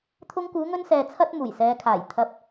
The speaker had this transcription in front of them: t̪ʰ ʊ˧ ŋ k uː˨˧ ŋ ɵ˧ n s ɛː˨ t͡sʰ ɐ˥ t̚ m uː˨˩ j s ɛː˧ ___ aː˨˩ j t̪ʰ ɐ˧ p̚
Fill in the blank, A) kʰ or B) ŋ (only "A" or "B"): A